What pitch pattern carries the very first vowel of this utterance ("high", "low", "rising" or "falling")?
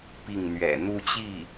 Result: falling